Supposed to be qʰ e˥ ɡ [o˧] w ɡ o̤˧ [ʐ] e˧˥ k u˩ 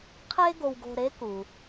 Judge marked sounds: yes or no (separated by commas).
yes, no